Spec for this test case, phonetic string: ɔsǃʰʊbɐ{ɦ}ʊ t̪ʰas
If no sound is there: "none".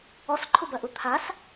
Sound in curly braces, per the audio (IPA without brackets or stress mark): ʔ